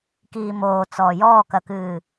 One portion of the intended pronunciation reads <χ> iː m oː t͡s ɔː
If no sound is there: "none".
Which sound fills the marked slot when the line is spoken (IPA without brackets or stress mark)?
k